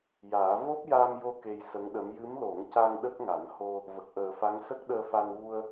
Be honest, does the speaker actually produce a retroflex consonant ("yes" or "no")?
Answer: no